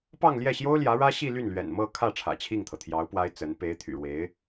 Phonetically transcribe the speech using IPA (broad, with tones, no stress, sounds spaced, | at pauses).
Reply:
p ɑ˥˧ ŋ l j ɛ˥˩ ɕ j o˥ ʊ̯ l j ä˧˥ ɻ ä˥ ɕ i˥˧ l y˥˩ n l ɥ ɛ̰˨˩ n m ɤ˥˧ kʰ ä˥˩ ʈ͡ʂʰ ä̰˨˩ t͡ɕʰ i˥˩ ŋ t̪ʰ ɤ˩ t̪ʰ j ɑ˧˥ ʊ̯ p w a˥ ɪ̯ t͡s ə˧˥ n p e˧˥ ɪ̯ t̪ʰ y̰˨˩ ɻ w e˧˥ ɪ̯